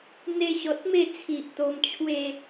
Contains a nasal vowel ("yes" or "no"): no